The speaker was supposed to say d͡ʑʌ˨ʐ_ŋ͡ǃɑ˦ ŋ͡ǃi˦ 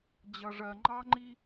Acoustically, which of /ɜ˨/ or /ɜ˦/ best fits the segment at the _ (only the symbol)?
ɜ˨